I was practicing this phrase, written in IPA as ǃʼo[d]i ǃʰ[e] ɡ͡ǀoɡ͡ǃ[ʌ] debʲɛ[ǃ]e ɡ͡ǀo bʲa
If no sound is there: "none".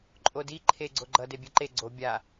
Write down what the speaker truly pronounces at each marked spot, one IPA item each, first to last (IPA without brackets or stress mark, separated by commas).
d, e, ʌ, ǃ